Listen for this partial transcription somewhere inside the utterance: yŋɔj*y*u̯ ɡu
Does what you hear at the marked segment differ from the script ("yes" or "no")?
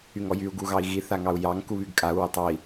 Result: no